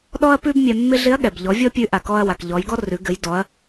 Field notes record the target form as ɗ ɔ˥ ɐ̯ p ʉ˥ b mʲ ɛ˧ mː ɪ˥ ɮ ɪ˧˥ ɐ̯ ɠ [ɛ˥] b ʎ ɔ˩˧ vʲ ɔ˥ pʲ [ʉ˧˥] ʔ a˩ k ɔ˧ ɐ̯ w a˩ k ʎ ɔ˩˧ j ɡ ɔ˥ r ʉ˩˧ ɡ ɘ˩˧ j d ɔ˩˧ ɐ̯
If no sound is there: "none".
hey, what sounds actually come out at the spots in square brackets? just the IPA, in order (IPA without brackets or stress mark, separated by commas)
ɛ˩, ʉ˧˥